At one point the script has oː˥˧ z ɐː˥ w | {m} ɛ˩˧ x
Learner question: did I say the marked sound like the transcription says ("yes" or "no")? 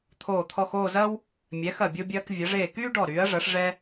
no